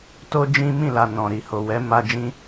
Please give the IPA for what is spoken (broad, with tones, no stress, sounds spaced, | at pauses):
t o˦ d͡ʒ ĩ˦ m ĩ˦˨ l a˨ n ɔ̃˨ ɾ i˨ h o˨ w ɛ˨˦ m a˧ d͡ʒ ĩ˧